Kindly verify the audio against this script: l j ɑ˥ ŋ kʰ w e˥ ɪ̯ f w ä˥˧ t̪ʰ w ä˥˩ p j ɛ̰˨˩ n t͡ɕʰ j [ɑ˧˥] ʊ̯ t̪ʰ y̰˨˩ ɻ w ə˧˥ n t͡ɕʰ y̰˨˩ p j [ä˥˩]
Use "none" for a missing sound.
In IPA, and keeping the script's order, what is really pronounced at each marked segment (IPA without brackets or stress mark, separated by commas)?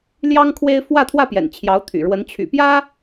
ɑ˧˥, ä˥